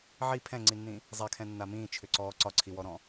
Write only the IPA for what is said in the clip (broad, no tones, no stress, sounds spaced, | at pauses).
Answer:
ʕ i pʰ ɛ̃ ŋ͡ǀ i nː ĩ | zˤ ɛ kʰ ɛ̃ nː a m ĩː t͡ʃʰ ʏ ǀ ɔː ǀ ɒ ǀʰ i w ɔ ɾ ɔ̃